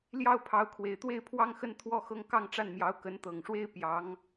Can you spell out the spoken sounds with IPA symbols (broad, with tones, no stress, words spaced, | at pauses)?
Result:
ljɑ˥˩ʊ̯pʰɑ˧˥ʊ̯kʰwe˨˩ɪ̯t̪we˥˧ɪ̯ pʰwɑ˥˧ŋxə˥˧n t̪ʰwɔ˥˧xɤ˥˧ŋ kɑ˥˧ŋʈ͡ʂa˥˩nmjɑ˧˥ʊ̯ kə˧˥nt̪ɤ˨˩ŋʂwe˥ɪ̯ pjɑ˧˥ŋ